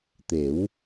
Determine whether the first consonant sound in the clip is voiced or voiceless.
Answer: voiceless